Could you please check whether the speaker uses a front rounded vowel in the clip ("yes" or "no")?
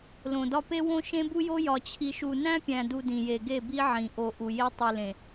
no